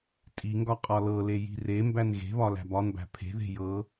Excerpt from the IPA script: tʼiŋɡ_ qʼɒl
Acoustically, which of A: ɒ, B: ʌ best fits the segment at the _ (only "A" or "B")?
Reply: A